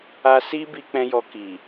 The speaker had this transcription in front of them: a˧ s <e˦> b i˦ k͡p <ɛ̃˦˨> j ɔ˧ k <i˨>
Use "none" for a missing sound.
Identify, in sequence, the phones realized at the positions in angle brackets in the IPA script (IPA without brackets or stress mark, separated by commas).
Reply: i˦, ɛ̃˦, i˨